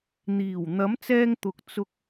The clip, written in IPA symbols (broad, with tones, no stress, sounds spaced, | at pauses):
n̪ iː˨˩ w n̪ ɐ˨˥ m t͡s ɛː˧ ŋ t̪ ʊ˨ k̚ t͡s ʊ˧ k̚